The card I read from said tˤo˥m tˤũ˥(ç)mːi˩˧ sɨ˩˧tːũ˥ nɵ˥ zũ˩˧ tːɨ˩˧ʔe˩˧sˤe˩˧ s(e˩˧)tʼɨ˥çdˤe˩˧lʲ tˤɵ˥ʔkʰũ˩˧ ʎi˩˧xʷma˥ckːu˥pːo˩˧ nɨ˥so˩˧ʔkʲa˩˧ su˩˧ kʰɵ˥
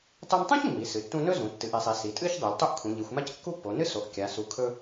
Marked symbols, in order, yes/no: yes, no

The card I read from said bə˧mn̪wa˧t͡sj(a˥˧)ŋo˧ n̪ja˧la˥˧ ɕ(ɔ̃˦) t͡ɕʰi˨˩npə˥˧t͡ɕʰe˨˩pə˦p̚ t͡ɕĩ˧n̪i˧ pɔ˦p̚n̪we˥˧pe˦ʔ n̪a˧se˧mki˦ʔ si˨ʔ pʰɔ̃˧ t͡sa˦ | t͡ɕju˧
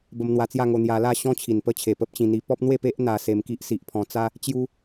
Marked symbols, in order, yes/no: yes, yes

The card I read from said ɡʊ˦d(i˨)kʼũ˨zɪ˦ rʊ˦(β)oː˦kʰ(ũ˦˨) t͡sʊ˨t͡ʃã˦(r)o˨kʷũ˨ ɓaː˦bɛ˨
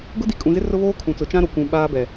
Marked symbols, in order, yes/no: yes, yes, no, no

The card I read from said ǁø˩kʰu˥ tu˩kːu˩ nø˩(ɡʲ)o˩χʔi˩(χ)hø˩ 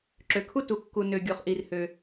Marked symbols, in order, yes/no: yes, no

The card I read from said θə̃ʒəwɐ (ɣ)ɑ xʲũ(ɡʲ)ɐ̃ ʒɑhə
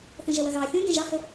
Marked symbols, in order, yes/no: yes, yes

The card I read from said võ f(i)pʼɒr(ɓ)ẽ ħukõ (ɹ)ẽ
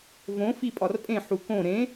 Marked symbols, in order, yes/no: yes, no, no

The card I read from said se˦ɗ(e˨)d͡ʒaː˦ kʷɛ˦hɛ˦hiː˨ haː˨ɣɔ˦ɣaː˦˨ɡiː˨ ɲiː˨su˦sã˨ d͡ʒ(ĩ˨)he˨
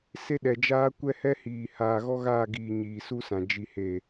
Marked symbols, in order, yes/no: no, no

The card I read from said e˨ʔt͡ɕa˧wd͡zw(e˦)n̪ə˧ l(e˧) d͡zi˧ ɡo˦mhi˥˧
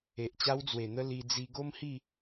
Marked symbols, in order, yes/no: no, no

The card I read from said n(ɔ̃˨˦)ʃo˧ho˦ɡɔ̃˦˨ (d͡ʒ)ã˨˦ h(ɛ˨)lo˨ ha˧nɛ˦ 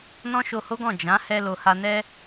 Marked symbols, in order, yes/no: no, yes, no

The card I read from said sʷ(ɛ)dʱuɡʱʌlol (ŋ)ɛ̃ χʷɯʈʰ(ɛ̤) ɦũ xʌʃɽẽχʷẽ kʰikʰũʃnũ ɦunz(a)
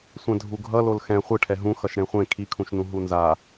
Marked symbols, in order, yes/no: no, no, no, yes

